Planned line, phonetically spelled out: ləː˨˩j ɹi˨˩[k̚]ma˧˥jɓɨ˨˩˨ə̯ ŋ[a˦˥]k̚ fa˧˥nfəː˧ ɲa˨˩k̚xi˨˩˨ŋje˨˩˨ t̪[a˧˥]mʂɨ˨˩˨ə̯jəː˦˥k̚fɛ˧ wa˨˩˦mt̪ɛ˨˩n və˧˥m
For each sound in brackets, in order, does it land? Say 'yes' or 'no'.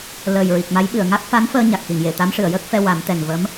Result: yes, yes, yes

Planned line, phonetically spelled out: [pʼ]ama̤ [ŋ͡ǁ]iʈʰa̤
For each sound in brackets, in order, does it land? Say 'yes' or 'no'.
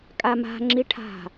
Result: no, yes

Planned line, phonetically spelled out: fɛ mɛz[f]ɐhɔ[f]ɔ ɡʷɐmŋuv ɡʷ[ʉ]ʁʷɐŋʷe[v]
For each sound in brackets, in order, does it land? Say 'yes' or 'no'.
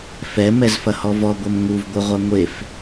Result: yes, no, no, no

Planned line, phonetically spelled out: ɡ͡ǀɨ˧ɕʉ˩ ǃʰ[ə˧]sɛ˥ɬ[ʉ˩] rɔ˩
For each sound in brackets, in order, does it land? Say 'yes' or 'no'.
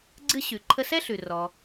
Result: yes, yes

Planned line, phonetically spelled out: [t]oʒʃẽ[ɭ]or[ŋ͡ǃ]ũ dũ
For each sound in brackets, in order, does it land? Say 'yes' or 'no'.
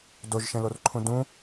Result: no, no, no

